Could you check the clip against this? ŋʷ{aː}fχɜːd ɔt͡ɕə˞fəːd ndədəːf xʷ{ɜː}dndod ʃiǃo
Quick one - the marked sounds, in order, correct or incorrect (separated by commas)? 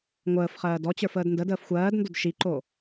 incorrect, correct